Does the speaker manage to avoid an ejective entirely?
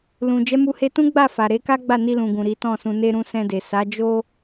yes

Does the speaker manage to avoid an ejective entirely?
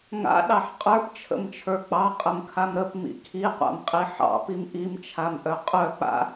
no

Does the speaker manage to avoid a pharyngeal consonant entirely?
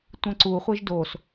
yes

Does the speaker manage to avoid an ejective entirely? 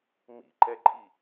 no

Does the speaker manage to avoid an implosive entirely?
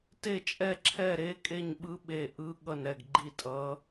no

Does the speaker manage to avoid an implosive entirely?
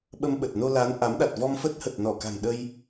no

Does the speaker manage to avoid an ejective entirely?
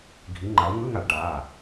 yes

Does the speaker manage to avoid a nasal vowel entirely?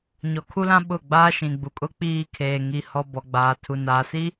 no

